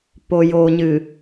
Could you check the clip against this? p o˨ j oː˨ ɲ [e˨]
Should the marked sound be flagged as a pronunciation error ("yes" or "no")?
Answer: yes